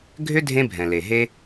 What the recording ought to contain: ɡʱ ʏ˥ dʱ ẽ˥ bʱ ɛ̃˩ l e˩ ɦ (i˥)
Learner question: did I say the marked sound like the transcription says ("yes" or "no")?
no